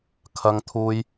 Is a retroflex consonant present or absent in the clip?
absent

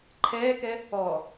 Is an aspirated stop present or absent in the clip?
present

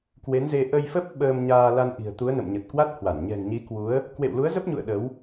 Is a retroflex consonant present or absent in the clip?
absent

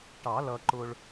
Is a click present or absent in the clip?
present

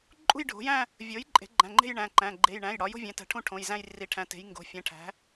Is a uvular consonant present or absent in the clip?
absent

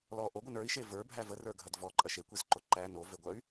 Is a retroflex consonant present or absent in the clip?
absent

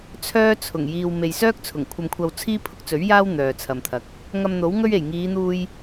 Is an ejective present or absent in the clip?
absent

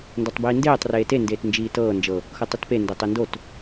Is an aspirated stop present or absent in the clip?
absent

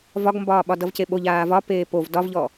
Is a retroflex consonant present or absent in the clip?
absent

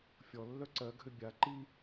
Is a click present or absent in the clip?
present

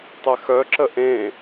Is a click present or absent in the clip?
present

